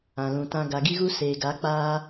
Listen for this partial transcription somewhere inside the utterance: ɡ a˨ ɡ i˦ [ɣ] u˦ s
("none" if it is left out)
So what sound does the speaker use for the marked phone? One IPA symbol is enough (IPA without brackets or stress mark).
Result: ɣ